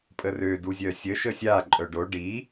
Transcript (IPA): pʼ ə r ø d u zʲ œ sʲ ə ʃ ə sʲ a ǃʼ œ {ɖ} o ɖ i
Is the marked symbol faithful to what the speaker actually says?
yes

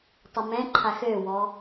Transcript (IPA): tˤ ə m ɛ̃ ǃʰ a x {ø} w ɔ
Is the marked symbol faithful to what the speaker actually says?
yes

